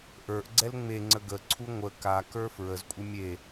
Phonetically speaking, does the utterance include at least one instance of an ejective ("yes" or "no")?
yes